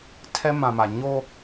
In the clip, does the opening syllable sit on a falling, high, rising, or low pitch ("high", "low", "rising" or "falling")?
high